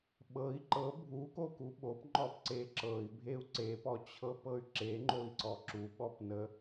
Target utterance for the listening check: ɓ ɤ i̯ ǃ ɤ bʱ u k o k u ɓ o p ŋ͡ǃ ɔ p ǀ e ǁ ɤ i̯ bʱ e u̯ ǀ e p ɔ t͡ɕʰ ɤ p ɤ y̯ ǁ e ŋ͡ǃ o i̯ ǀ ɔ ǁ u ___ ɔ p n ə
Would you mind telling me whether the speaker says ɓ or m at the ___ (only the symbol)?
ɓ